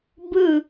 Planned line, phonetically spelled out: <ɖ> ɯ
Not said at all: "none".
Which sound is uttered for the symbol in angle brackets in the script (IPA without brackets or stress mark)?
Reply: b